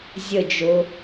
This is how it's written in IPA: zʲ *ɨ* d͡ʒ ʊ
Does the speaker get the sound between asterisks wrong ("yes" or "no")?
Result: yes